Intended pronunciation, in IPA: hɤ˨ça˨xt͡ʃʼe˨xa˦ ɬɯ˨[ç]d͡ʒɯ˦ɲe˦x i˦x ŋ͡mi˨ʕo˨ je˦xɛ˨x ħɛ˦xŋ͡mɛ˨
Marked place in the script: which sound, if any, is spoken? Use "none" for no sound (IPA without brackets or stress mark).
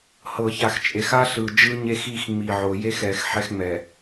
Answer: none